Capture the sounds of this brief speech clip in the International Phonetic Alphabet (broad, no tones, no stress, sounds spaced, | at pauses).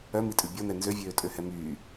œ m i tʼ ʉ bʲ ɔ n ɛ n z ø vʲ øː tʼ ø h ɛ m yː